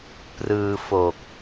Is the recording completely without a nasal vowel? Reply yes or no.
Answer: yes